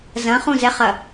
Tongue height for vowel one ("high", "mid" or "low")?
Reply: low